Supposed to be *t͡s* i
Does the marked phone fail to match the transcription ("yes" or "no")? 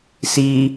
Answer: yes